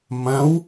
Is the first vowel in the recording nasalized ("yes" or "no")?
yes